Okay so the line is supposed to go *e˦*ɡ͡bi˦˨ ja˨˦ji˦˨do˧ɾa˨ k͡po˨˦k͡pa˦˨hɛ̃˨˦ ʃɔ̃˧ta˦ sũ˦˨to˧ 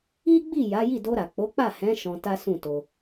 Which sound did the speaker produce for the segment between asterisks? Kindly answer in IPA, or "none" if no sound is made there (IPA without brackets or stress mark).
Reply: i˦